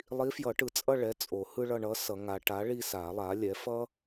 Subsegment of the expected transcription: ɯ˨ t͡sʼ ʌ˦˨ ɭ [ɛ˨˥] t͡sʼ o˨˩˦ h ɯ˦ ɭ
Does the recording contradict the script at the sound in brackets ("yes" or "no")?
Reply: no